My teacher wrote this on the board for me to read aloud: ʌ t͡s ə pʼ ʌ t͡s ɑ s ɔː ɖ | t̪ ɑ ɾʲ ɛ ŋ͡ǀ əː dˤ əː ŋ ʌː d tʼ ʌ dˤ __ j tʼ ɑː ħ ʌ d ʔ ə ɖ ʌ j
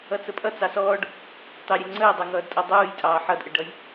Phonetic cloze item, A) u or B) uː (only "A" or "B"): B